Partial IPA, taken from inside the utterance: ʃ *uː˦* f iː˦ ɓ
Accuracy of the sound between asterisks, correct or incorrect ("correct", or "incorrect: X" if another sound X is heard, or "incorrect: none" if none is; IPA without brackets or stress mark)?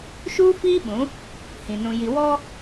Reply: correct